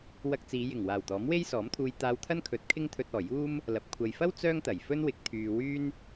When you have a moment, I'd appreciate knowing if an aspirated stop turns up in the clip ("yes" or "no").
yes